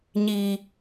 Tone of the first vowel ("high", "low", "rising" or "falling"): low